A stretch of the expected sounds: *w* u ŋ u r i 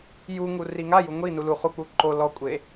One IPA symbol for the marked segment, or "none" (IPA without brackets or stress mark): j